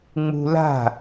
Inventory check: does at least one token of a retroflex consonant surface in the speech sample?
no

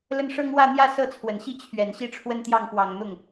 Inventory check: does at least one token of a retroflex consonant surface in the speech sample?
yes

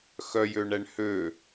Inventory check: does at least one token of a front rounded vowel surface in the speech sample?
yes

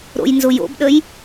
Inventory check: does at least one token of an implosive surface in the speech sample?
yes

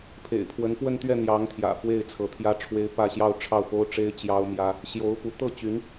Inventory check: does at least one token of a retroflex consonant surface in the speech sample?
yes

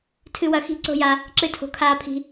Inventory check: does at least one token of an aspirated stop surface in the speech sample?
yes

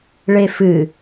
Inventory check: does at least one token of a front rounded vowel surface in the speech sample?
no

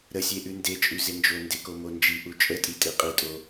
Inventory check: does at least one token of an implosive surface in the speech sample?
no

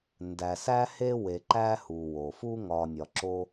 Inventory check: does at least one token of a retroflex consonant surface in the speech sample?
no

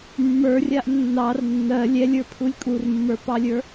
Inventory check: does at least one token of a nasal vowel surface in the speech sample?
no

